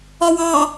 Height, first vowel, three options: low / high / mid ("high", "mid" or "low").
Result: low